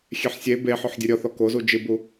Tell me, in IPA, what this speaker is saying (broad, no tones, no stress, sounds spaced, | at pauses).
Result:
xʲ ɛ ħ sʲ e b e ħ ɔ ħ dʲ u ɾʲ ɔ θ ɔ k o z u d͡ʒ ɨ b u